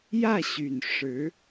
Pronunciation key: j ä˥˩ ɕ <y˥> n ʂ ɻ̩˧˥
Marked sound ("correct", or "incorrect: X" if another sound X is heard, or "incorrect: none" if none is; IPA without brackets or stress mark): incorrect: y˨˩